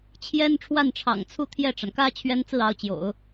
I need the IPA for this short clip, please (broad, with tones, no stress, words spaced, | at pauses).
t͡ɕʰjɛ˥n ʈ͡ʂʰwa˥˩nʈ͡ʂʰɑ̰˨˩ŋt͡sʰu˥˧ t̪ʰjɛ˥˩ʈ͡ʂa˩nkä˥ t͡ɕʰɥɛ˥nt͡sɹ̩˥˩ɑ˧˥ʊ̯ t͡ɕjo̰˨˩˦ʊ̯